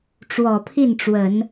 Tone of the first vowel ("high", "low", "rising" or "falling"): low